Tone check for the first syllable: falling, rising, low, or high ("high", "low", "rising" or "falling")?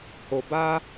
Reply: low